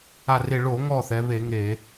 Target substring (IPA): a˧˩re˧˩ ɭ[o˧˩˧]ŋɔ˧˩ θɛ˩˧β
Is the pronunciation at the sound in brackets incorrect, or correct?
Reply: correct